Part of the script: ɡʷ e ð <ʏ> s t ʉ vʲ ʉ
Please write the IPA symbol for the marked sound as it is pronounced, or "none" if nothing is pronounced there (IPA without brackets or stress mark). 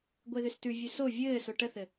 ʏ